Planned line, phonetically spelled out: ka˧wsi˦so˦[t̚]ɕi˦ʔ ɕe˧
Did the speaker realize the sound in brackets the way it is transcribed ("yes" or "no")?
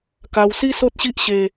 yes